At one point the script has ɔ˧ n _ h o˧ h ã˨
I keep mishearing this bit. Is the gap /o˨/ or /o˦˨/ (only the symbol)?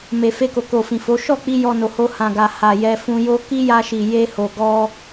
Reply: o˨